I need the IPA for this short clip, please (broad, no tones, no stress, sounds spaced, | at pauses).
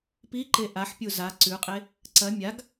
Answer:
p i ǃ e ʔ a ħ pʲ u z a ǀ ʉ qʼ e | ǀ ɐ mʲ a ɡ